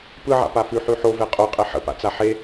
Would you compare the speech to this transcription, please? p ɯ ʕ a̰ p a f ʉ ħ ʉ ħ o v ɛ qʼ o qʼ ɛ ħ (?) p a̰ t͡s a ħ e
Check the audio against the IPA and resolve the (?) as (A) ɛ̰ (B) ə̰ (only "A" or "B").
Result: B